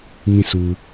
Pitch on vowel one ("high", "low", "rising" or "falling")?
falling